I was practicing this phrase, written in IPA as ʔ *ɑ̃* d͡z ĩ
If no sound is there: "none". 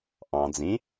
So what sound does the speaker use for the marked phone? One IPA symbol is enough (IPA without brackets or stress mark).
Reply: ɑ̃